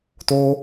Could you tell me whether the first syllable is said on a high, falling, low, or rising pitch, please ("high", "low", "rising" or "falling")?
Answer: high